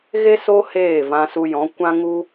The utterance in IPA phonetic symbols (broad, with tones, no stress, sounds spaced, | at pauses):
ɣ e˦ s o˦ h eː˦˨ v ã˧ s u˧ j ɔ̃˨˦ kʷ ã˦ ŋ u˦